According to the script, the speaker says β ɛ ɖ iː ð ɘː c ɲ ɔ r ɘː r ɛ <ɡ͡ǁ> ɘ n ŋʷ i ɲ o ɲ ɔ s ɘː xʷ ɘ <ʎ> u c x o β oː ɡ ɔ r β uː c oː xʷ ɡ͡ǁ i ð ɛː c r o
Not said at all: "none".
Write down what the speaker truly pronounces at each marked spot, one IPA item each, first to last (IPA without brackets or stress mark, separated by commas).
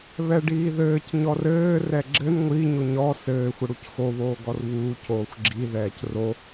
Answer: ɡ͡ǁ, ɽ